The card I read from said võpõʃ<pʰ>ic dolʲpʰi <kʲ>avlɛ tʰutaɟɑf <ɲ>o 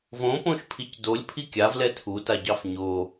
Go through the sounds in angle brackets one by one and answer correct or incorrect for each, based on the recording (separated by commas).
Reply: correct, correct, correct